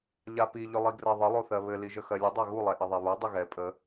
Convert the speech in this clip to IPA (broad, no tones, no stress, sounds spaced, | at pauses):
ʎ a p i ʎ ʏ lˠ i ɡ r ɜ ðˤ ə lˠ o θ ɜ β ɘ l i ʒ ə x ɜ lʲ ɘ dˤ a ɣ u lˠ ɛ ʔ ɘ ðˤ ɛ β o dˤ ə ɣ ɛ pʼ ə